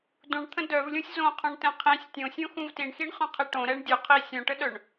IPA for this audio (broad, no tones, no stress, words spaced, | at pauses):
dũɳt̪ʰə̃ dœvlʲũsʲ zõqʰõɳtɛ̃ qʰĩsʲ tʲõsʲõxũv tiɳxiɳχœ̃qʰi ʈõɾɛɳ dʲuqʰi sʲõʈəɗœɳ